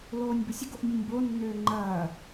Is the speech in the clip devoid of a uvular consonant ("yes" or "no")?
yes